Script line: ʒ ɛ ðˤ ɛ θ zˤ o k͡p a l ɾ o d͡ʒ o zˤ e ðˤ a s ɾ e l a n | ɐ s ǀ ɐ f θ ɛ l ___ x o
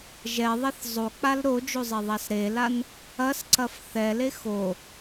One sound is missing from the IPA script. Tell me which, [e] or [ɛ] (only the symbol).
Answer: e